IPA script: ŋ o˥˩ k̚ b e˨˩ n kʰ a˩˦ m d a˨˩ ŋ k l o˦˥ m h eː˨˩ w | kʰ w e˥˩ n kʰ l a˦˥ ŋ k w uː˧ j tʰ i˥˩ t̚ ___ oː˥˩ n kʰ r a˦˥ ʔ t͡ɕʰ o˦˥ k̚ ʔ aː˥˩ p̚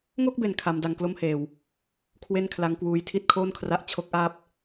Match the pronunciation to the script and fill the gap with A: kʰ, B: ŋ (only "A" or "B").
A